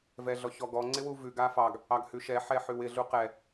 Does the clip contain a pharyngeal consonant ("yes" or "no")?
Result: yes